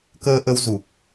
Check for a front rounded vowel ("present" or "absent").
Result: absent